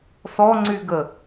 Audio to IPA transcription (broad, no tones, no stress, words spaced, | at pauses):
sɔŋ͡ǀyɡə